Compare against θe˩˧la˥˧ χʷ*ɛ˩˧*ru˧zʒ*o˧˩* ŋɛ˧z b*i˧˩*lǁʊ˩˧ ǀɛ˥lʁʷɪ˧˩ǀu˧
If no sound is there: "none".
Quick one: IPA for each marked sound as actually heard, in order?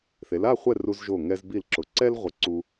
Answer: ɛ˥˧, o˧˩, i˧˩

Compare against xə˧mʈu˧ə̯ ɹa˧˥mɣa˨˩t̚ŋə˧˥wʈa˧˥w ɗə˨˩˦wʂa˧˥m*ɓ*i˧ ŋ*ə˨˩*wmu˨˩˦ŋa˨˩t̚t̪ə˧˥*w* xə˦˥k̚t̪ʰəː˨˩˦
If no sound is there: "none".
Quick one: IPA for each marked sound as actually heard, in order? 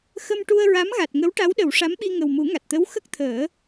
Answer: ɓ, ə˨˩, w

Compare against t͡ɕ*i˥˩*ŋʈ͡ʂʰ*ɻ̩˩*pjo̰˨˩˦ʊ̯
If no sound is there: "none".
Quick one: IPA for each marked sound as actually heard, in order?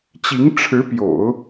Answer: i˧˥, ɻ̩˧˥

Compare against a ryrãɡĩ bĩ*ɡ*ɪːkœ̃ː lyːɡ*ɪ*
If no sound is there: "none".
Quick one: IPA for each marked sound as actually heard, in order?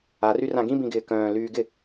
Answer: ɡ, ɪ

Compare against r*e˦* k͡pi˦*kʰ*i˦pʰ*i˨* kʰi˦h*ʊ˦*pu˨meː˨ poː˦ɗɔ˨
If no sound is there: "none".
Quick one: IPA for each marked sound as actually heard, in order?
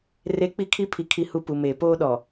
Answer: e˦, kʰ, i˨, u˦

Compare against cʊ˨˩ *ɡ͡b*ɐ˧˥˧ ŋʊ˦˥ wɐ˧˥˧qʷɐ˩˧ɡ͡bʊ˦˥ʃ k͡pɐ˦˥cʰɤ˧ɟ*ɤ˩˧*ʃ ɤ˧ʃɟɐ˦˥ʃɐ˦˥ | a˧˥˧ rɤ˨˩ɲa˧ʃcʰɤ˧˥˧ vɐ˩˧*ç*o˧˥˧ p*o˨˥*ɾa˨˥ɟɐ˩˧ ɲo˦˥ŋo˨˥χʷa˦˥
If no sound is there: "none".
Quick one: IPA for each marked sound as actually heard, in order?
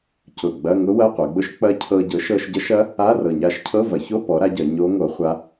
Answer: ɡ͡b, ɤ˨˥, ç, ɔ˨˥

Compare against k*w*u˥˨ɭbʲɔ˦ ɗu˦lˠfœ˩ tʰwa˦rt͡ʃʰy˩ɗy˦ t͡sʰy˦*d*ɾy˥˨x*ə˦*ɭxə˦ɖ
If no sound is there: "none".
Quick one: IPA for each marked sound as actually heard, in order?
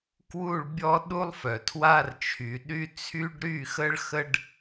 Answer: w, ɖ, ə˦

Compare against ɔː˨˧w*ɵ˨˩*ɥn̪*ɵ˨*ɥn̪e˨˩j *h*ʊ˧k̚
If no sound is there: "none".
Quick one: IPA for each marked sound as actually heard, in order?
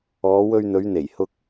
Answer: ɵ˧, ɵ˨˧, h

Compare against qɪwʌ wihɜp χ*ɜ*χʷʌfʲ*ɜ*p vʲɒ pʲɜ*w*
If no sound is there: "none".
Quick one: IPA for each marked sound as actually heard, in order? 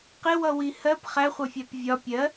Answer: æ, æ, none

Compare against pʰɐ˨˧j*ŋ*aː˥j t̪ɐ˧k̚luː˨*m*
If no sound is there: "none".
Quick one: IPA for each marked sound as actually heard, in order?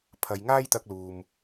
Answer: ŋ, m

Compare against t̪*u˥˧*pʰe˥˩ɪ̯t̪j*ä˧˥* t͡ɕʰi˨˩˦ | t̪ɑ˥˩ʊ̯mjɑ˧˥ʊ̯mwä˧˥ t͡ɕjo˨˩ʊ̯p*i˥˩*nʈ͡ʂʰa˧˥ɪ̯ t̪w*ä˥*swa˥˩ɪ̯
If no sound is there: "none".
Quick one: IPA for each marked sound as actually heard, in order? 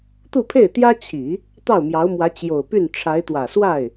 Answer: u˥˧, ä˥, y˥˩, ä˨˩

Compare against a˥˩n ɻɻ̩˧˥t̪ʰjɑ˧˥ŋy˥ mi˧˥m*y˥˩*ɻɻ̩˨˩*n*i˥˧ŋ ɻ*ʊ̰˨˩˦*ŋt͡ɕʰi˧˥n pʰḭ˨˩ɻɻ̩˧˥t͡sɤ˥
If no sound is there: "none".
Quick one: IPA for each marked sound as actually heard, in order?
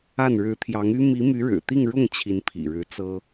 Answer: y˧˥, t̪, ʊ˥˩

